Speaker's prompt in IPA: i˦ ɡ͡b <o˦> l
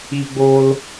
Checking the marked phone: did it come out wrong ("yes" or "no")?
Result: no